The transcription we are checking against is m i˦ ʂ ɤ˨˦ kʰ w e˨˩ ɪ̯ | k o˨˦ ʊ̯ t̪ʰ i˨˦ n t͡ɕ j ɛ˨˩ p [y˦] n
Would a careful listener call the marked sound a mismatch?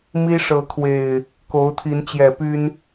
no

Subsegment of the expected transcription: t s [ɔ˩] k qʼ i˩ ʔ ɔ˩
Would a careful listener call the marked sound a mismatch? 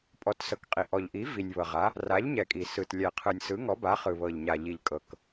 yes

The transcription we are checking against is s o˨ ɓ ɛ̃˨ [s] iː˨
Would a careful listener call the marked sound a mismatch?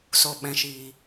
yes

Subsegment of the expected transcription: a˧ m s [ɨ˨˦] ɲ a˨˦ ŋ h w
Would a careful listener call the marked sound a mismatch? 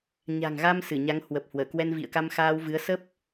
yes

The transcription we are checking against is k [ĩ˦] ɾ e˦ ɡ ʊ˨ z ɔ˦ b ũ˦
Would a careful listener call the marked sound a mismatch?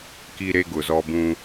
yes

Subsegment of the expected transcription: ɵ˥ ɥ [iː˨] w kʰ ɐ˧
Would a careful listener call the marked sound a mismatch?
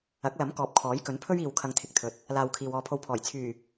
no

